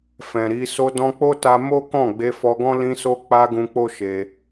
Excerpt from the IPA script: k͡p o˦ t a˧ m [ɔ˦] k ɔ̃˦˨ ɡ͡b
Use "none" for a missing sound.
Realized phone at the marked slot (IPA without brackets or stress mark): o˦